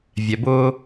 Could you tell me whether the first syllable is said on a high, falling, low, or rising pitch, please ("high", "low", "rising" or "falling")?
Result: low